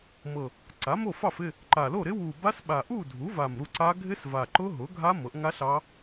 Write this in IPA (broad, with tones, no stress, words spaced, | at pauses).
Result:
mɤ˨˩ | ǀa˩˥mo˥˨fɑ˥˨f ɪ˥˨ | ǃa˨˩lo˥˨ɾɪ˦˥ wu˨˩ba˦˥sɓa˨˩ ʔu˥˨dʱu˩˥va˨˩m ɾu˥˨ǀa˦˥ ɡʱɪ˦˥sva˨˩ǃʊ˦˥ ɦʊ˩˥ɡʱa˦˥ mɤ˩˥ʔŋa˦˥ ɬɑ˦˥